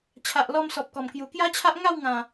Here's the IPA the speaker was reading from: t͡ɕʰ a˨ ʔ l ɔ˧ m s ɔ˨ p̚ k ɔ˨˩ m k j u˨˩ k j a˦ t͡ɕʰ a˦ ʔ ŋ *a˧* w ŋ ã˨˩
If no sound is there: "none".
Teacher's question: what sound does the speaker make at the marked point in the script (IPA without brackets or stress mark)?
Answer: a˥˧